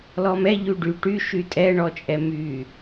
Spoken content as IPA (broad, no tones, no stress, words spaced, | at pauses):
lɔmɛ ʎyɖy ʈy ʃytʼɛɳɔ t͡ʃʼɛmy